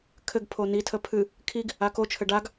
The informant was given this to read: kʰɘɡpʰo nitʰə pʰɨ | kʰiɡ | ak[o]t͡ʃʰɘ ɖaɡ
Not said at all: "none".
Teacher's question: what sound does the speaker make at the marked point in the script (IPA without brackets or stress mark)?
o